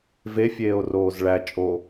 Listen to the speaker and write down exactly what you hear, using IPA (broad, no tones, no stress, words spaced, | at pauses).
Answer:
ve fʲeːo̯roːzɭæ t͡ʃʼo